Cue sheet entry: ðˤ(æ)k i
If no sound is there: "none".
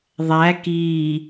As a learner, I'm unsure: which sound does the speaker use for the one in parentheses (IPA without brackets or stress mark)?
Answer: æ